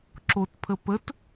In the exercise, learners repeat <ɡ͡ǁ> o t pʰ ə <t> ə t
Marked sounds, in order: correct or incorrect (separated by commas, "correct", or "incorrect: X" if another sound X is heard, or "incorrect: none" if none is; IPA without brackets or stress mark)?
incorrect: ǁ, incorrect: p